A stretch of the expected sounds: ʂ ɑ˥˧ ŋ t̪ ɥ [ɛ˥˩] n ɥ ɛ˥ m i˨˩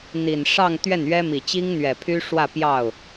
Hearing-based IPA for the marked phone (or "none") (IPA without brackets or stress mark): ɛ˥˩